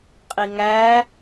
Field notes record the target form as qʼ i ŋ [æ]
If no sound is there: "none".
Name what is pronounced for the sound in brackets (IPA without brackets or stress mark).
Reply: æ